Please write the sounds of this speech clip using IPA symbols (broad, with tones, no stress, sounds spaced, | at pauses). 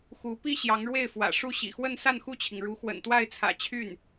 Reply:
x u˧˥ p i˥ ɕ j ɑ˧˥ ŋ ɻ w e˥˩ ɪ̯ f w ä̰˨˩ ʂ u˥˩ ɕ ḭ˨˩ x w ə˥˧ n s a˥˧ n x u˥˩ t͡ɕʰ i˩ ŋ ɻ u˧˥ x w ə̰˨˩ n t̪ w a˥˩ ɪ̯ t͡sʰ ä̰˨˩ t͡ɕʰ y˥˩ n